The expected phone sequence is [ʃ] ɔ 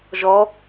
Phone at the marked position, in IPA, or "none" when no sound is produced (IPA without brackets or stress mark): ʒ